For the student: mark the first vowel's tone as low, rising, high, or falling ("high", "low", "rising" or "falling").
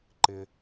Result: high